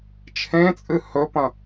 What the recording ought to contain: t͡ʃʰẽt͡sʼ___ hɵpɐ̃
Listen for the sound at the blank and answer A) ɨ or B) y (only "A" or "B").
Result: A